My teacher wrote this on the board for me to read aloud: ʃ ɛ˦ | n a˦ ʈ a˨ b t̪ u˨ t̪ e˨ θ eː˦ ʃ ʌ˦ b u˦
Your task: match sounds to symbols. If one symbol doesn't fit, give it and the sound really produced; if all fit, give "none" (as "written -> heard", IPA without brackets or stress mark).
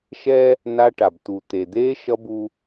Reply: θ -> d̪